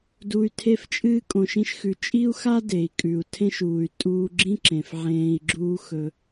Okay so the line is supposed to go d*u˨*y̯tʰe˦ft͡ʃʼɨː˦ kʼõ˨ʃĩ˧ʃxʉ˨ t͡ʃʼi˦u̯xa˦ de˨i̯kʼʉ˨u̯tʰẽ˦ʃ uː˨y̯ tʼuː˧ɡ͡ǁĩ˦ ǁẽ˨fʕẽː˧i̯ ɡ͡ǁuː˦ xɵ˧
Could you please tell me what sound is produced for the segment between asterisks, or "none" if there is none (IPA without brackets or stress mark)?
u˧